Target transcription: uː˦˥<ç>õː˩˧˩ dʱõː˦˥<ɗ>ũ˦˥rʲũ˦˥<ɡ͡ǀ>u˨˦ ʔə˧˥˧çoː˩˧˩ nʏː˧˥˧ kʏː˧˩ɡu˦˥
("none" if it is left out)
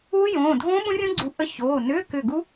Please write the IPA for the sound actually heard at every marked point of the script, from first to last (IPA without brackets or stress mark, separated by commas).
j, ɓ, ɡ͡ǀ